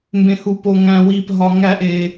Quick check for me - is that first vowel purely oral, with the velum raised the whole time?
no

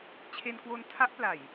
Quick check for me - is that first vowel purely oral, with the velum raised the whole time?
yes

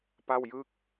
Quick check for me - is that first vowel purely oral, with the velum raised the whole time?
yes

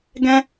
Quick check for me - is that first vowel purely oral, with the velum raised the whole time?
no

